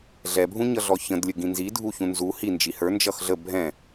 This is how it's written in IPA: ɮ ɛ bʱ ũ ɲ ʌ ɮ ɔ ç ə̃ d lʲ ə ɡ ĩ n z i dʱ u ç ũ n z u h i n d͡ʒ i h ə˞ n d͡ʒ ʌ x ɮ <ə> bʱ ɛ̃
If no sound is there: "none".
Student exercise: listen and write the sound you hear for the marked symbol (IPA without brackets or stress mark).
ə